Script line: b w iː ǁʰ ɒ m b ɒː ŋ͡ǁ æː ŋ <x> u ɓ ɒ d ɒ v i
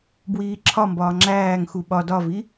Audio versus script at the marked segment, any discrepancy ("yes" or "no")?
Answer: no